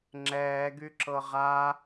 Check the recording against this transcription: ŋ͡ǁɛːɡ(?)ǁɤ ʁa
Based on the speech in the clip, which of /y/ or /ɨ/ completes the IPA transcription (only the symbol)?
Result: y